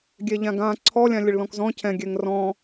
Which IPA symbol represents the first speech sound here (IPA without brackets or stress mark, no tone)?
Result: ɡʲ